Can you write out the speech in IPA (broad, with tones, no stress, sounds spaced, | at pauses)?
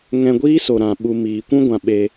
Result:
ŋ ɛ̃˧ ɡʷ iː˦ s o˨ ɾ ã˨ ɓ u˨ m iː˨ kʷ ũ˦ ɡʷ ã˨ ɓ e˧